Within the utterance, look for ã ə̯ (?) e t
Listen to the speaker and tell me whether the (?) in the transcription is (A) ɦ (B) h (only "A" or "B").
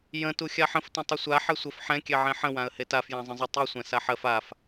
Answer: B